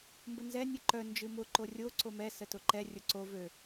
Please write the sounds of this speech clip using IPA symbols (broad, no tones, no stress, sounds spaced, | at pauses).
m b ə n z ɛ nʲ ɨ ǃ œ n d͡ʒ ɨ m ʊ ǃ o rʲ o ǀ o m ɛ s ə t ʊ ǃ ɛ rʲ ʊ ǀ o v ø